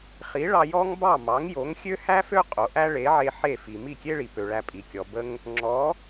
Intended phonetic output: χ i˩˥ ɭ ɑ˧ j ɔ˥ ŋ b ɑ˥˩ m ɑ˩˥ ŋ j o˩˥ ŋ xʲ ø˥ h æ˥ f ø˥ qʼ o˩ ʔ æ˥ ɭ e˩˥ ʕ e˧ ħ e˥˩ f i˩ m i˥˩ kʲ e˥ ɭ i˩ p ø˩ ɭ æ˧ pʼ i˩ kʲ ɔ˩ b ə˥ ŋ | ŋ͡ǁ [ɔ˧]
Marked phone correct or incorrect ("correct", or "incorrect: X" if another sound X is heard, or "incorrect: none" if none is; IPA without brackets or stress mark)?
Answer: incorrect: ɔ˩˥